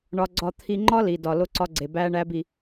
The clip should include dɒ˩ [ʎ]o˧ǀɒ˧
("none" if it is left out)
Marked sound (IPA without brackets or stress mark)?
l